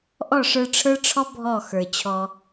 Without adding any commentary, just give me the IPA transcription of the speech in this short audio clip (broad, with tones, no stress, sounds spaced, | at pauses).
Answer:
ʔ ɔ˦˨ ʂ ə˞˧ ʈ͡ʂʰ ə˞˦ ʈ͡ʂʰ ɔ˦ bʱ ɔ˦˨ x ə˞˨ t͡ɕʰ ɔ˧